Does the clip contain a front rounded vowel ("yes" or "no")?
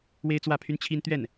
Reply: yes